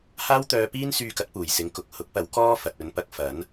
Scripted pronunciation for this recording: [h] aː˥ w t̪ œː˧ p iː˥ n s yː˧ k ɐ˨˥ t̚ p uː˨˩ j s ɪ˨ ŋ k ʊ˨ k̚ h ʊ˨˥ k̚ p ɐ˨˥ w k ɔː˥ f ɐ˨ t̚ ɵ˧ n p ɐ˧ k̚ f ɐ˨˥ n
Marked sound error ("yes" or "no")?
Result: no